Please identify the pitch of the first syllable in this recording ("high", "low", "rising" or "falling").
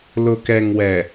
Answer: low